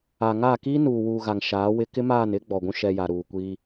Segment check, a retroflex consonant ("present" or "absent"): absent